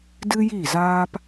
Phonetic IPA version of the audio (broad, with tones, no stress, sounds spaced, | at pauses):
d ɨ˦ j i˦˨ z aː˦ p